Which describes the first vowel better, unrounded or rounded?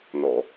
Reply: rounded